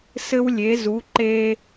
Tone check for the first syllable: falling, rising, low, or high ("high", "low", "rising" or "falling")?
high